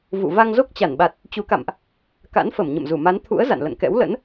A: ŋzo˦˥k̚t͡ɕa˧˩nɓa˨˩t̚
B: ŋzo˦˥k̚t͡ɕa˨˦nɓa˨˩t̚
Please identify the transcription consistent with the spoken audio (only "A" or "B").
A